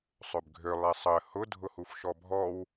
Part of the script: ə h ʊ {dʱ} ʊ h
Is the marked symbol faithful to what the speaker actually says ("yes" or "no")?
yes